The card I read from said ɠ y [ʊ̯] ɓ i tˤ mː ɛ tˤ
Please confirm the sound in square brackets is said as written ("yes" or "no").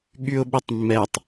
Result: yes